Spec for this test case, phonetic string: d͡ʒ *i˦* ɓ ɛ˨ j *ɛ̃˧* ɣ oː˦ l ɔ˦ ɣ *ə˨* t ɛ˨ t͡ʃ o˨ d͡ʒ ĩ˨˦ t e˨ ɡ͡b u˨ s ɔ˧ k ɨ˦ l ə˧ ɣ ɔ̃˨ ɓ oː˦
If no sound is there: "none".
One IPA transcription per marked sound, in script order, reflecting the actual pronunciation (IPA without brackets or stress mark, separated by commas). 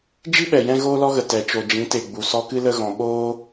i˦, ɛ̃˧, ə˨